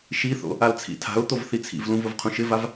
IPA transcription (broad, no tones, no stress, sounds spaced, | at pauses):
ʃ i θ o̰ | a l t͡sʰ ḭ tʰ a̤ ʊ̯ t̪ o v θ i t͡sʰ ḭ v l ũ v ʊ v qʰ ũ ʃ ɪ v a v